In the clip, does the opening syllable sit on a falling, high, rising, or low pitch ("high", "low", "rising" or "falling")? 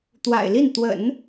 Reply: low